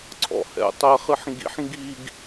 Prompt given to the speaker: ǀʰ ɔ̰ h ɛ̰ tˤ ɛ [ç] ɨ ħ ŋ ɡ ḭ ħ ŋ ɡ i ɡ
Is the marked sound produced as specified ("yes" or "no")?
no